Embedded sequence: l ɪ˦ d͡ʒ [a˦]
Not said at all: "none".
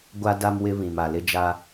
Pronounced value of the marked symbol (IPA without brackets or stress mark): a˦